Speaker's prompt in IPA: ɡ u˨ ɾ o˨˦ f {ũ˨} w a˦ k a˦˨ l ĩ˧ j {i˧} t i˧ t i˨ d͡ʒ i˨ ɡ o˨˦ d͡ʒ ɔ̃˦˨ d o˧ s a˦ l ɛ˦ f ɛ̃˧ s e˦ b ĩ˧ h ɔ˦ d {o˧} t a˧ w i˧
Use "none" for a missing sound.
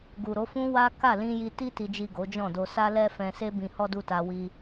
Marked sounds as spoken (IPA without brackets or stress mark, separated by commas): ũ˦, i˧, u˧